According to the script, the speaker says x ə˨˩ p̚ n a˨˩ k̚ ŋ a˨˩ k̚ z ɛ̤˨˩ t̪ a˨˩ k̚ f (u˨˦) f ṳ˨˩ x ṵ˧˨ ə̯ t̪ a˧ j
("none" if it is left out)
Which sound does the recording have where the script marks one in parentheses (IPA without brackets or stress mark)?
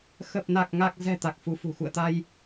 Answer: u˨˦